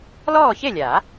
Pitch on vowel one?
falling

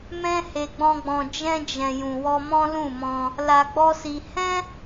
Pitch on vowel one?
high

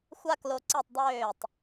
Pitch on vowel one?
high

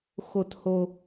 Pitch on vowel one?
low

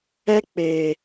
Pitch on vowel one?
high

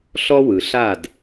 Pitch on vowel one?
high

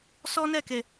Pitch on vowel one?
high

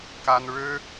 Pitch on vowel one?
high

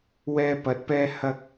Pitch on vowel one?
high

